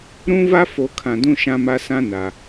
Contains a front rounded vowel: no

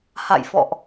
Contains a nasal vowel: no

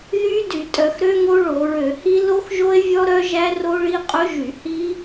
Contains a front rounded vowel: yes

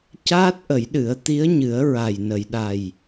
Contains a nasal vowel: no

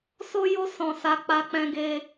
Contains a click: no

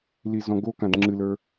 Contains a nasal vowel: yes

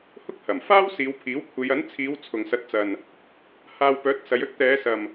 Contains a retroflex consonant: no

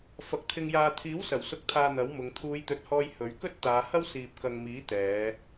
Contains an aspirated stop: yes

